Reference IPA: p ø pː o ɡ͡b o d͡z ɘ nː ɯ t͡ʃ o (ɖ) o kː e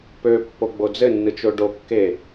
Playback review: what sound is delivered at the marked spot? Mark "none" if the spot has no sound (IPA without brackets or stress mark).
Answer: ɖ